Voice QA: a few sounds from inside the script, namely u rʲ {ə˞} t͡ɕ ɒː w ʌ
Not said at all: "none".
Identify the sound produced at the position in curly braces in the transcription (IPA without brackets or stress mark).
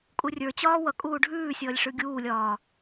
ə˞